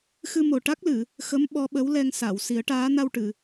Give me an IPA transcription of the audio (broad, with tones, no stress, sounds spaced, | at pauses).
x ɨ˧ m o˨˩ ʈ a˦˥ k̚ l ɨ˨˩˨ | x ə˧˥ m ɓ ɔ˧˥ ɓ ə˧˥ w l ɛ˧ ŋ s a˨˩˨ w s i˨˩˦ ə̯ ʈ aː˧˥ n a˧ w ʈ ɨ˨˩˨